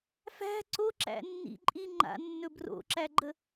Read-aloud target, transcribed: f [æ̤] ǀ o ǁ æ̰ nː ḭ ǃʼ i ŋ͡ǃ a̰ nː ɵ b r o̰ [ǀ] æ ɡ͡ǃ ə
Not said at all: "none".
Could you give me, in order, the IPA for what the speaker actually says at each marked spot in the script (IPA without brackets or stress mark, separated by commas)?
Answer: æ̤, ǁ